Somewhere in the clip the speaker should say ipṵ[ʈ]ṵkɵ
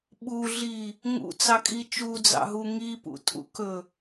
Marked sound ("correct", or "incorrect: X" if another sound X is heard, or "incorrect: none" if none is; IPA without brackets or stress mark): incorrect: tʼ